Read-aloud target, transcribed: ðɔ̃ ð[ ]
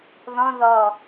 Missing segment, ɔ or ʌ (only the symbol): ɔ